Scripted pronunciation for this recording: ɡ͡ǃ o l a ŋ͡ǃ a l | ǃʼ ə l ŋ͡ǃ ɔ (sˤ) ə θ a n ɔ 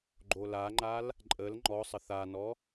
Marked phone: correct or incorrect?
correct